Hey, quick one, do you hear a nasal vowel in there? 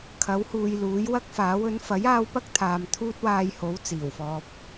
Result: no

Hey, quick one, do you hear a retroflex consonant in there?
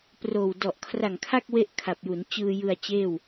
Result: no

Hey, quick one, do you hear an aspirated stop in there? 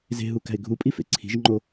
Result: yes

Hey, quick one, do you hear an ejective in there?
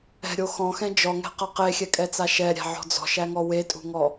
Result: yes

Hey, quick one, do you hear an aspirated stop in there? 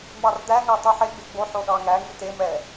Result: no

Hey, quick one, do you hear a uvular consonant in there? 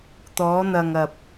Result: no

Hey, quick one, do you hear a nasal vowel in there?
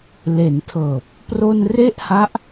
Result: no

